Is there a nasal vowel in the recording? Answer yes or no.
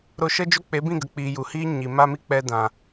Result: yes